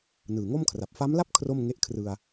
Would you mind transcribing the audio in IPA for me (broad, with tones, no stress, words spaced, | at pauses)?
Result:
nɯː˨˩ŋo˥˩mkʰra˨˩p̚ fa˦˥mla˥˩p̚ kʰro˥˩mŋe˦˥ʔkʰrɯ˧a̯